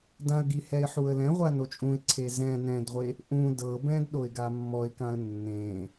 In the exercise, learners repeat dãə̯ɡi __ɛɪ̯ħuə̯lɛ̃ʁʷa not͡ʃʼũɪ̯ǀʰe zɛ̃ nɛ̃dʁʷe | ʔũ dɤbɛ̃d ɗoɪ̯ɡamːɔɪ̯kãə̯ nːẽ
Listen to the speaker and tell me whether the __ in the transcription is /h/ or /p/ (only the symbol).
h